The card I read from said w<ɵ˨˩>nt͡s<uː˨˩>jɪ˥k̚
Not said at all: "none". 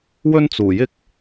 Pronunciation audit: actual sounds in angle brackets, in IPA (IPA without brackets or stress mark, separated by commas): ɵ˥, uː˨˩